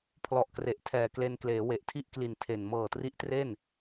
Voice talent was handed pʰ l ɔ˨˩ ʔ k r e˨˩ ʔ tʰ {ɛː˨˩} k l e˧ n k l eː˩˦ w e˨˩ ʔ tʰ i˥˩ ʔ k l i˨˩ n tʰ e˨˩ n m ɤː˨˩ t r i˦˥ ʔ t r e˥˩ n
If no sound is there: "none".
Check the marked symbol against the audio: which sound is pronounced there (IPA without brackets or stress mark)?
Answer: ɛː˨˩